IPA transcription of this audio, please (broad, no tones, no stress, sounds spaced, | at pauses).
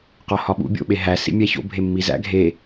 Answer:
q ɒ h ɒ ɓ ṵ bʲ o̰ ɓ e ɦ æ s ḭ mʲ æ ç o̰ bʱ e mː i z æ̰ ɡʱ e